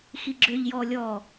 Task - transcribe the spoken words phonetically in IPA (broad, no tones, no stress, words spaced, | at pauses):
xiɡ͡ǁøʎjɔː lʲɔː